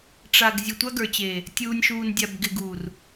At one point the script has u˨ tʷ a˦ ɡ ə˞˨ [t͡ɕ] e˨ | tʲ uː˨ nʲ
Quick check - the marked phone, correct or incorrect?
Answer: correct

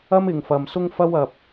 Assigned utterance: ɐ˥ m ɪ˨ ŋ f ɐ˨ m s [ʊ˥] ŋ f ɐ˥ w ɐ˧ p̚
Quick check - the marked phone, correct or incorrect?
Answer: correct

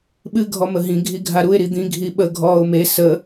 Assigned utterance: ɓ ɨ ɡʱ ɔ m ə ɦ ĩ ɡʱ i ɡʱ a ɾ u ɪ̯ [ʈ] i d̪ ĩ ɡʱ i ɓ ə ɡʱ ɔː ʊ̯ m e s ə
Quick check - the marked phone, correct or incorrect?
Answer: incorrect: ɾ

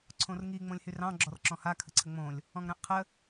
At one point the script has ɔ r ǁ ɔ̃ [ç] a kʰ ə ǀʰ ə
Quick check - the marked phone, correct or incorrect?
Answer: incorrect: h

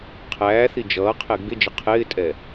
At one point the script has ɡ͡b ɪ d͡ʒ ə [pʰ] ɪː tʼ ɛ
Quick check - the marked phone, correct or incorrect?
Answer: incorrect: qʰ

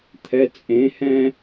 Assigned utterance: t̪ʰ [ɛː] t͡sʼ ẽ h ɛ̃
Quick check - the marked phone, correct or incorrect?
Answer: incorrect: ɛ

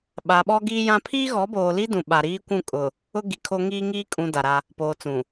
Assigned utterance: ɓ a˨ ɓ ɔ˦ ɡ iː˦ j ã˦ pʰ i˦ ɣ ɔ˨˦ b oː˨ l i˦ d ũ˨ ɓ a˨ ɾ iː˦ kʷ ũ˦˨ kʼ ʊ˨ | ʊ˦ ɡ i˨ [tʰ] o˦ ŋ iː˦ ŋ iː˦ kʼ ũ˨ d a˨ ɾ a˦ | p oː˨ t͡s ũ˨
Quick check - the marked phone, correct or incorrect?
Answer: incorrect: kʰ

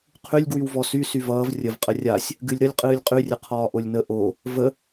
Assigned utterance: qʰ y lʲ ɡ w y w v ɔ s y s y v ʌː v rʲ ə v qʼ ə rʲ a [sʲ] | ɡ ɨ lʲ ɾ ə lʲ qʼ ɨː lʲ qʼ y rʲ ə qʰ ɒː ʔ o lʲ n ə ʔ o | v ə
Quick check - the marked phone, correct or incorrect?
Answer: correct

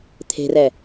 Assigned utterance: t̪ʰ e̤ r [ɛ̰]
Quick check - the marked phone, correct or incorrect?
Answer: incorrect: ɛ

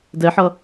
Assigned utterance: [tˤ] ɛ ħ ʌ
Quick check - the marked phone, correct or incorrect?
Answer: incorrect: d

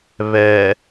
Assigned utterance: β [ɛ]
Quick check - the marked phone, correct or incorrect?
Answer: correct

